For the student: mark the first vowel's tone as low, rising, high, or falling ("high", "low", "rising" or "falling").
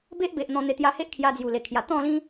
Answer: high